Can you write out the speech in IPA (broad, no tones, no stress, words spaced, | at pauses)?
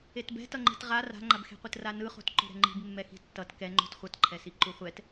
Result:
etbɛ̤tʌŋ͡ǃi̤t ʁa ra̤ŋ͡ǃabxe̤qʷɯt ranɯχo̤t ǃo̤ɾɛ̤ŋ͡ǃi̤b mːɛxi̤tːʌt kɛŋ͡ǃo̤t χʷʌtǃʰɛsi ǃuχʷɛt